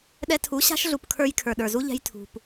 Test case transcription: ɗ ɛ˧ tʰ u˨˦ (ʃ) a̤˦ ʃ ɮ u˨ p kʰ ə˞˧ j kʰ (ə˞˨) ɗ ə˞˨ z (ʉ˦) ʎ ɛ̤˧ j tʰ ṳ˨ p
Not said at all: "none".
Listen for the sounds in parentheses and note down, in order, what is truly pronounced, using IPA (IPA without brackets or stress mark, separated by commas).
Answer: ɕ, ə˞˨, u˦